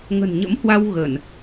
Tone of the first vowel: low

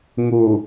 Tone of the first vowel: low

